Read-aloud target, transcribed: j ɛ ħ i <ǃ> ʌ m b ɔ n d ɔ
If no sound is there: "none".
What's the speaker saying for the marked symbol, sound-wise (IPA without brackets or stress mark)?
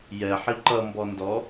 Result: ǃ